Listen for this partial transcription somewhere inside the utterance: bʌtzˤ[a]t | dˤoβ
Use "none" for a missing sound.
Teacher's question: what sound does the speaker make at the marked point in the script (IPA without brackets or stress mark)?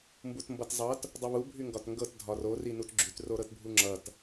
ʌ